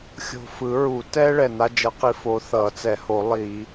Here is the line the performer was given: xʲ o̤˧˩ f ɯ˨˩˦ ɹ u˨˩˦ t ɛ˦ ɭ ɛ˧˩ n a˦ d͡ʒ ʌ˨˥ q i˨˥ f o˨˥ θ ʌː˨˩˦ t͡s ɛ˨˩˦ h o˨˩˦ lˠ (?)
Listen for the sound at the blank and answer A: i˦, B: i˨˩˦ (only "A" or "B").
B